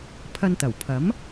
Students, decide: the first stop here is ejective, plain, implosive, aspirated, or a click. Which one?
aspirated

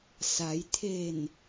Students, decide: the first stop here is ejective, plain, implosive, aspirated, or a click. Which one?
aspirated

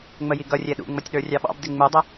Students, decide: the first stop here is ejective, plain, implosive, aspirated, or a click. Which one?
plain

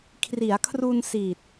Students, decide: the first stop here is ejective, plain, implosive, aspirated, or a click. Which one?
aspirated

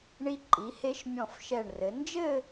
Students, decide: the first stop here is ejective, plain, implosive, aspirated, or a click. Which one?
click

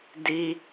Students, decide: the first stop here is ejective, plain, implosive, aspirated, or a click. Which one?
plain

